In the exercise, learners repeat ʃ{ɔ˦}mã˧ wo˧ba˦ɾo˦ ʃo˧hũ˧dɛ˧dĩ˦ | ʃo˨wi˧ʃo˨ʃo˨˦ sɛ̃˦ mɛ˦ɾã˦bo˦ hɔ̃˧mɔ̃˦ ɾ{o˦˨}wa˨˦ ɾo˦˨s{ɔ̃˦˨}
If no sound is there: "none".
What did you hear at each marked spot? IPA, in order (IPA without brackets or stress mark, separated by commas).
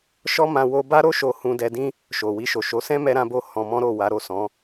ɔ˦, o˦˨, ɔ̃˨˦